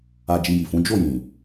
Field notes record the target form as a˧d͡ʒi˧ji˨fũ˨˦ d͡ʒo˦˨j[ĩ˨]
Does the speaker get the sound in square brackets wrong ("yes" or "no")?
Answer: no